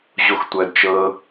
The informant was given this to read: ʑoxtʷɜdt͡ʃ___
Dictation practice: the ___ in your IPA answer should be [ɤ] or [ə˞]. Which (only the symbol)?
ɤ